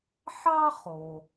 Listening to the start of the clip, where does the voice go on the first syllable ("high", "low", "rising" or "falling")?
high